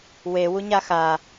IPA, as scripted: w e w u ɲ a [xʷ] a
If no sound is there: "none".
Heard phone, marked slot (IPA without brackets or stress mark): x